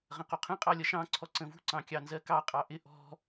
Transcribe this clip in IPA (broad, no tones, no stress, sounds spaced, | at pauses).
ʁ ə̃ q u qʰ ə̃ qʼ ɑ lʲ ʌ ʃ ɑ̃ ǀʰ ɔ ǀ ə̃ v ṳ ǀ ɑ̃ kʲ ɑ n z ɜ k ɑ qʼ ɑ ʔ ɪ ʔ ɔ̤